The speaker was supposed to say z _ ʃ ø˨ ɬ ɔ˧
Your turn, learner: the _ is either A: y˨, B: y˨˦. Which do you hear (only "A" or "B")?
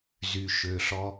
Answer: A